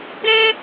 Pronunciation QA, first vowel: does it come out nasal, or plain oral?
nasal